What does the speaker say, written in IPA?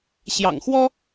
ɕ j ɑ̰˨˩ ŋ x w ɔ˥

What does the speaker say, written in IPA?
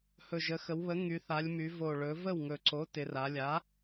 h ɵ˨˩ ʒ ə˩˧ x ə˩˧ w β ə˩˥ ŋ y˩˧ θ a˩˧ lʲ m y˩˧ v o˨˩ ɭ ɵ˩˧ v ə˥˩ w ŋ ɵ˨˩ ǀ o˩˥ t ɪ˩˧ r a˩˧ lʲ a˩˥

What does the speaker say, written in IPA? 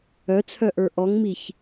œ t͡sʰ œ ʔ ə˞ ʔ ɔ ŋ m i ç

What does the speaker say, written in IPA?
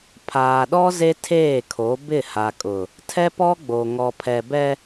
pʰ aː˨ ɗ ɔ˦ z e˦ tʰ eː˦˨ kʰ o˨˦ b ɪ˦˨ h a˨ kʼ ʊ˨ | tʰ ɛ˦ p ɔ˦ ɡ͡b o˨ ŋ ɔ˨ pʰ ɛ˨ b ɛ˦

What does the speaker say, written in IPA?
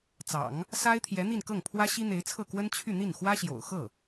t͡s ɑ̰˨˩˦ ŋ | s a˥ ɪ̯ t̪ʰ j ɛ˧˥ n̪ i˥˧ n k ɤ˥˩ ŋ pʰ w ä˥ ɕ i˥ n̪ e˧˥ ɪ̯ t͡sʰ ɤ˥˩ k w ə˥ n t͡ɕʰ y˥˧ n̪ i˥˩ n x w ä˥ ɕ j o̰˨˩ ʊ̯ x ɤ˥˩

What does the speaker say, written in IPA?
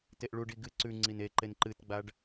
t e ʔ ɭ u ɖ i ɡ ɨ ǀ ʉ ŋ͡ǀ i n e ǃ e n ǃ ɨ t ɡ͡b a ɖ

